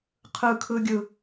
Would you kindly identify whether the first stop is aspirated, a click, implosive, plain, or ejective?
aspirated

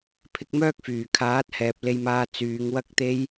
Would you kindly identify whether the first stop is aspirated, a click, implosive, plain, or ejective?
aspirated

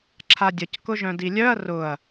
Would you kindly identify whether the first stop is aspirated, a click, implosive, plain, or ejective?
click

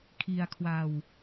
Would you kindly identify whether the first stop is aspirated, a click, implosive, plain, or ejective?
aspirated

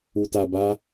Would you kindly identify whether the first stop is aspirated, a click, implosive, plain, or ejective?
plain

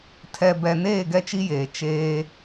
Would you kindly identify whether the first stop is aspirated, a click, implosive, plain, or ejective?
aspirated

